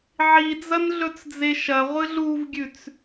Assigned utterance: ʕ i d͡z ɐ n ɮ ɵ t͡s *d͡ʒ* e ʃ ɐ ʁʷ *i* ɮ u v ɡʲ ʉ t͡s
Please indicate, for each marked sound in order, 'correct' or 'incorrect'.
incorrect, incorrect

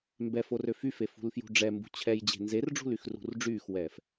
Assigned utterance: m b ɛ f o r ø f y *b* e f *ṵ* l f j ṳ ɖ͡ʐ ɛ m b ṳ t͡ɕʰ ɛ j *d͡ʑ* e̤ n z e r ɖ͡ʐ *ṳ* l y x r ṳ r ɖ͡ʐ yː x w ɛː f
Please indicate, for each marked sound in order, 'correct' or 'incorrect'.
incorrect, incorrect, correct, correct

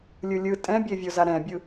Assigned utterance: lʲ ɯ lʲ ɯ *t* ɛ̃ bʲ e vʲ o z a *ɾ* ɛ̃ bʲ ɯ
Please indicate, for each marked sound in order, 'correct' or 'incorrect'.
incorrect, correct

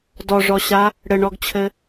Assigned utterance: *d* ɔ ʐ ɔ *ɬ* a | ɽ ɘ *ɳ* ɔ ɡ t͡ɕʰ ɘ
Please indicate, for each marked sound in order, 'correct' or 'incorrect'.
correct, incorrect, correct

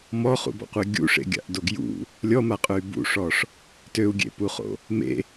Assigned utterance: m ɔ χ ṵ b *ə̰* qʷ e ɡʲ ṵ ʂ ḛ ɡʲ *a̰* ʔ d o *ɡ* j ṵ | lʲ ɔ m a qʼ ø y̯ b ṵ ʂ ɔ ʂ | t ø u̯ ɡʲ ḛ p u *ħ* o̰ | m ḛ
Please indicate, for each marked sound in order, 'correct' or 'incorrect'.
incorrect, correct, correct, incorrect

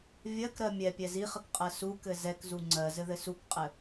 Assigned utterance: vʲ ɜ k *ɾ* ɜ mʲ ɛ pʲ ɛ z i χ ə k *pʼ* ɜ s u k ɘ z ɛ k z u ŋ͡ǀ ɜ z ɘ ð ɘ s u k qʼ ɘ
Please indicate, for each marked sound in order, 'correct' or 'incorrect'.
correct, incorrect

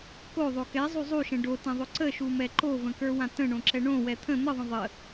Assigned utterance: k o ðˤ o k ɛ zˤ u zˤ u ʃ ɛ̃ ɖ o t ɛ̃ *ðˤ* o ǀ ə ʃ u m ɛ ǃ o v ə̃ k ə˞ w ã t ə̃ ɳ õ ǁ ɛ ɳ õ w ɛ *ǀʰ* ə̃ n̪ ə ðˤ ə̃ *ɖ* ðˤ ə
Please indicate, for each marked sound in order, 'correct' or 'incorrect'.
correct, incorrect, incorrect

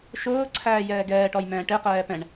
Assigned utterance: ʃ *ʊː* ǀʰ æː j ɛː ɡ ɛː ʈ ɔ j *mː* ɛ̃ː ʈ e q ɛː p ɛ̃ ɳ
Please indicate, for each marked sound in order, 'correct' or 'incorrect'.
correct, incorrect

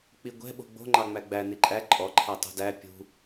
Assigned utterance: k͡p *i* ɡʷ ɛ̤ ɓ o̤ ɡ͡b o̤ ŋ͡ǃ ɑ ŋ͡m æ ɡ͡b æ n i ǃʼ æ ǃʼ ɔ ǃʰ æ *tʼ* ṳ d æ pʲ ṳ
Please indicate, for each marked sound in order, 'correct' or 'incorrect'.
correct, incorrect

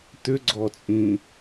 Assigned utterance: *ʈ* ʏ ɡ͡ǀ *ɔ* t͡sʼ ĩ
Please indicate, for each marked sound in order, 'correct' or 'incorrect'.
incorrect, correct

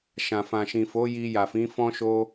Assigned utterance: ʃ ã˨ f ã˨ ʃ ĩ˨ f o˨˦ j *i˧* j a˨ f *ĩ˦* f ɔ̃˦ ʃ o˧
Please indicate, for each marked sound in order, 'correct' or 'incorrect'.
correct, incorrect

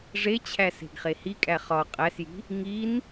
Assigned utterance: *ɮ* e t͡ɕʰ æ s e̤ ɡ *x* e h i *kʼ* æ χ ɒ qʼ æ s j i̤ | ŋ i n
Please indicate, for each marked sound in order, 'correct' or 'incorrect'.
incorrect, incorrect, correct

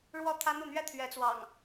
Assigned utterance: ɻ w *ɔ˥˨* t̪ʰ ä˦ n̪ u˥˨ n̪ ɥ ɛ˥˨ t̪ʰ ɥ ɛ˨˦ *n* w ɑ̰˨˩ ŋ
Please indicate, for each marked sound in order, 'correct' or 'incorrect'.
correct, incorrect

